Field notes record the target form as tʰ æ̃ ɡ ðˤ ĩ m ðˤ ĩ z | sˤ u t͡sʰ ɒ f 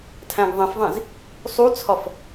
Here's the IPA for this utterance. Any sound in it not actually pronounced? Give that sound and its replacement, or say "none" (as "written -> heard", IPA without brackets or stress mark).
m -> f